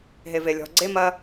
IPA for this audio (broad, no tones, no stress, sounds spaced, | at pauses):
ɦ e v e lʲ ɔ̤ ɡ͡ǀ e m ɐ